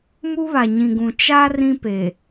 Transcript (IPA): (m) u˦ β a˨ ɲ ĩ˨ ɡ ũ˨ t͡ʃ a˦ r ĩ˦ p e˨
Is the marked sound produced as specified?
yes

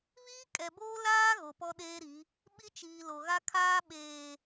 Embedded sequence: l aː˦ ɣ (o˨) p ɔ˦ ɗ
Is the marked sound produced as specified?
yes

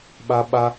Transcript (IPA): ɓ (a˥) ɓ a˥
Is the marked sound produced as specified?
yes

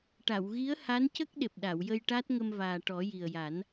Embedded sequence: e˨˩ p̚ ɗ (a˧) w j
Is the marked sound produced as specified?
no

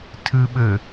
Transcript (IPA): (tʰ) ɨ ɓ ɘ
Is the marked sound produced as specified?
yes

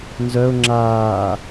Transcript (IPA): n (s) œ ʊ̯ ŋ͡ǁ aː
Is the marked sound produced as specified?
no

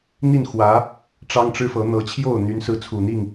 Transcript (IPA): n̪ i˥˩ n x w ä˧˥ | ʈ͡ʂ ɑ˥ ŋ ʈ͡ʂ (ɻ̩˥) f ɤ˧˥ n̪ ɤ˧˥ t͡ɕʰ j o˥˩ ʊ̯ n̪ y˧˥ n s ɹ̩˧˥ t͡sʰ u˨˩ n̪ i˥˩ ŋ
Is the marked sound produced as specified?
yes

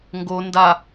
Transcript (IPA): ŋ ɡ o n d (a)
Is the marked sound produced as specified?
yes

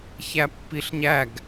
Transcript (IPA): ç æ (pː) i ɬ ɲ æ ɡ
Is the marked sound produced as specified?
yes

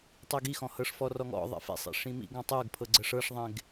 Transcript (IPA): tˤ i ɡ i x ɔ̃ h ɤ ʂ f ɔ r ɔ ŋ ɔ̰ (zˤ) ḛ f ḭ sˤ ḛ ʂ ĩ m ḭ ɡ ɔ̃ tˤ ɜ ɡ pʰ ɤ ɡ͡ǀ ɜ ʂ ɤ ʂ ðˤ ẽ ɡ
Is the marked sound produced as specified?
no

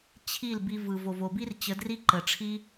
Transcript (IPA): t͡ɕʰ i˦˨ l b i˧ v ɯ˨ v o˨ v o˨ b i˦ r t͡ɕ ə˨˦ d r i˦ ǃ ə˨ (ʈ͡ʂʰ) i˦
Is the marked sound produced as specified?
yes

